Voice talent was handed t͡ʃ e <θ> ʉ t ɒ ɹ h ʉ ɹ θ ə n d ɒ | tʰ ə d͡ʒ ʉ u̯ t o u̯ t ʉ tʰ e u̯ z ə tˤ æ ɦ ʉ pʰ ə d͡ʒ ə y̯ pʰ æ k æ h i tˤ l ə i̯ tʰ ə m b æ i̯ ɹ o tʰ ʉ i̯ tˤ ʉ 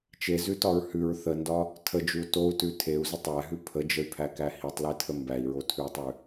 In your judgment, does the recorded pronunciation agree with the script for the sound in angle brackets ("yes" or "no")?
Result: no